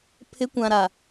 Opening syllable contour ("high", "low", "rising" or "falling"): rising